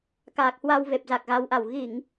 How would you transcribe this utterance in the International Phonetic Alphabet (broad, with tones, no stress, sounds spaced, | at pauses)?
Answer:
k aː˨˩ k̚ h w a˧ w v e˨˩ p̚ z a˨˩ k̚ ɣ a˨˦ w ʔ a˨˩ w ɣ i˧˩˨ ŋ